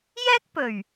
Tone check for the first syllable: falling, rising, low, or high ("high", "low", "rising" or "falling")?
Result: high